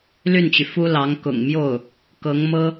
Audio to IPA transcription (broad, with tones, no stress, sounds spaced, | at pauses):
l y˥˩ n t͡ɕ y˩ f u˥ l ɑ˧˥ ŋ k ʊ̰˨˩ ŋ m j o˥˩ ʊ̯ | k ɤ˧˥ ŋ m ɤ˥